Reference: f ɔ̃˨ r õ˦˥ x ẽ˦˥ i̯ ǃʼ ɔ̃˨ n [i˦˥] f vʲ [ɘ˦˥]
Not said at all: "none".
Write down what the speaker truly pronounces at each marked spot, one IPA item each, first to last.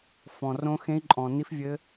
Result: i˦˥, ɘ˦˥

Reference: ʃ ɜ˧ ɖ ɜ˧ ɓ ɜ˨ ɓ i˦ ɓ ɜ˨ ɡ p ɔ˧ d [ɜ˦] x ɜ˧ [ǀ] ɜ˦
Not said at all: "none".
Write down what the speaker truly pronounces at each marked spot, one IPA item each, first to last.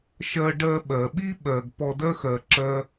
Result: ɜ˦, ǁ

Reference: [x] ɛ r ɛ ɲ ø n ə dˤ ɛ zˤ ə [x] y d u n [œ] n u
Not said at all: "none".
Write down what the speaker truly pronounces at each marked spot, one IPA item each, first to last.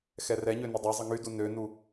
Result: x, ŋ, ø

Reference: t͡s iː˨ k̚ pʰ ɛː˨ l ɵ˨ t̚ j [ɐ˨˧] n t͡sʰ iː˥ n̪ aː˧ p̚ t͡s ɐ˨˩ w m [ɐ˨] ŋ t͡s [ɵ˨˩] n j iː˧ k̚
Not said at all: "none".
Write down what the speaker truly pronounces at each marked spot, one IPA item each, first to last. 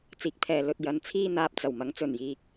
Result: ɐ˨˧, ɐ˨˥, ɵ˨˩

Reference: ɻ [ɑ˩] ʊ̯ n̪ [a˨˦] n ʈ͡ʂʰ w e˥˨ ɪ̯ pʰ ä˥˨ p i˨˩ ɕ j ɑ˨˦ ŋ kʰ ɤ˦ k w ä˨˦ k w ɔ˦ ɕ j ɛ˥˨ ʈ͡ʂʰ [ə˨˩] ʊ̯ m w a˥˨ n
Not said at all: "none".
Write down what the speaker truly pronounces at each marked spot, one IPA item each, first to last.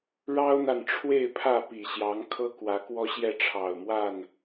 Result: ɑ˦, a˨, ɑ˨˩

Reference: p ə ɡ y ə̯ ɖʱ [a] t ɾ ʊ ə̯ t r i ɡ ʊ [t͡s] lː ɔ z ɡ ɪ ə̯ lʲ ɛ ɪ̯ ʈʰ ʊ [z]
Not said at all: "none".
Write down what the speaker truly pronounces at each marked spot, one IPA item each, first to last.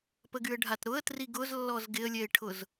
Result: a, z, z

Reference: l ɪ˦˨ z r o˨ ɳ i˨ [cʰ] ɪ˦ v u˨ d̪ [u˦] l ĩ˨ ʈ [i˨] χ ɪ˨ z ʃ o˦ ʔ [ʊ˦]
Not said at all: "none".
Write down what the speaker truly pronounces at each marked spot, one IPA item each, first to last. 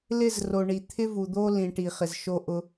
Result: t̪ʰ, o˦, i˨, ʊ˦

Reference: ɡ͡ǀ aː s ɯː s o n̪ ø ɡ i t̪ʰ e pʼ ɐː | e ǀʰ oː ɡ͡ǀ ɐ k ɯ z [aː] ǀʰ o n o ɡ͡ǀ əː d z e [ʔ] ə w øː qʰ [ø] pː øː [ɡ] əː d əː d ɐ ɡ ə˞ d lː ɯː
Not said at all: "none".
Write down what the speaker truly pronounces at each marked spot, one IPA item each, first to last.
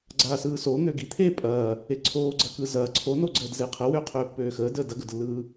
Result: ɐː, qʰ, øː, x

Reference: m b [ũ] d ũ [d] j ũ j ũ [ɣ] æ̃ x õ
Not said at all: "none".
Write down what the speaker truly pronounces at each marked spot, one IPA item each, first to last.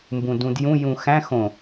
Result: ũ, d, x

